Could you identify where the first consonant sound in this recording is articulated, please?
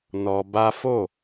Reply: alveolar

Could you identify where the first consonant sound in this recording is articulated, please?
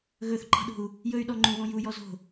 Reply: velar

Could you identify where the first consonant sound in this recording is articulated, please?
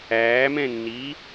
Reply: labial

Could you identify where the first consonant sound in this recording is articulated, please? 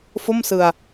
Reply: labial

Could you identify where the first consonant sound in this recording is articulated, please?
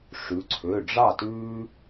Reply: retroflex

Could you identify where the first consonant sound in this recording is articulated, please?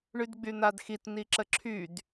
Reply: retroflex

